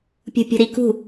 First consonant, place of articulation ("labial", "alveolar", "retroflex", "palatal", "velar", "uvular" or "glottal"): labial